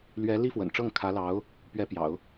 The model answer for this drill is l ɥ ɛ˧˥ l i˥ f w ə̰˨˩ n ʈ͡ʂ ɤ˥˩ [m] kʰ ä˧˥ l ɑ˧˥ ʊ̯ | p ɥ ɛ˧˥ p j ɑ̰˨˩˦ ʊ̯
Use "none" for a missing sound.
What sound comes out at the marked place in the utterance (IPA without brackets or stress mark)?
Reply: ŋ